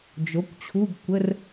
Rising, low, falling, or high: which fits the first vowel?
rising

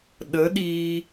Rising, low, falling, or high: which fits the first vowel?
rising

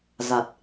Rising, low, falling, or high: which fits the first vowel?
low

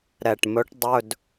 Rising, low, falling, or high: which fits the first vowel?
low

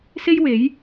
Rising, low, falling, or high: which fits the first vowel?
high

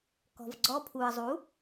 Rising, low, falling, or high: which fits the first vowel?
low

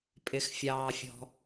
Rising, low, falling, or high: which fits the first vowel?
low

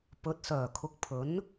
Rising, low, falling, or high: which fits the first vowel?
rising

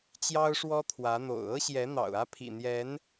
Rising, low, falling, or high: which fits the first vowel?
high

